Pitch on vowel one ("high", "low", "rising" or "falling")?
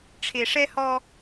low